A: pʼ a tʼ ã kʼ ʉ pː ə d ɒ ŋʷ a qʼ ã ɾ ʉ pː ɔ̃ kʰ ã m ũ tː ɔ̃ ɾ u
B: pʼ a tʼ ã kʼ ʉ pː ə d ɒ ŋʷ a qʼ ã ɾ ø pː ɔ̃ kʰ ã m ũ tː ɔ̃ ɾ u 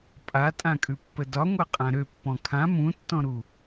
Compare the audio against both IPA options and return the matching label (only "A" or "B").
B